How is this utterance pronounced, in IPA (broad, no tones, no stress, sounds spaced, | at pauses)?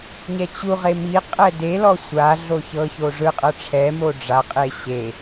ɲ ɛ t͡ɕ u ʁ e m i qʼ ɛ d e l ɔ sʷ a ɮ o ç ɤ ç o ʐ ɯ qʼ ɤ ʈ͡ʂʰ ɛ m o ɖ͡ʐ a qʼ e ɕ e